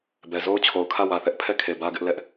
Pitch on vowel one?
low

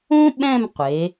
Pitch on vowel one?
high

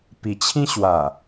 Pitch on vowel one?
low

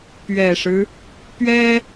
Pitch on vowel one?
low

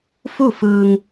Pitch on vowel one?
falling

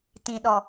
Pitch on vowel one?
low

